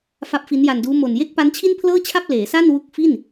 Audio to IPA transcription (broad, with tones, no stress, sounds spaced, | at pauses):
f a˦˥ p̚ f i˦˥ n j a˧ n d uː˦˥ m o˨˩ n j e˥˩ k̚ p a˦˥ n t͡ɕʰ i˥˩ n pʰ l ɤː˥˩ t͡ɕʰ a˥˩ p̚ l eː˩˦ s a˥˩ n w u˦˥ k̚ f i˥˩ n